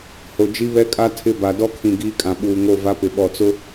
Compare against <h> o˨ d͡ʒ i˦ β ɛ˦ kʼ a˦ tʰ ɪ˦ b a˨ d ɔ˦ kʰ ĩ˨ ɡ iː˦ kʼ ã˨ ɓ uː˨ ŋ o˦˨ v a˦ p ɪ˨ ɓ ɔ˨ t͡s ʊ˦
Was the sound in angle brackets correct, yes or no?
yes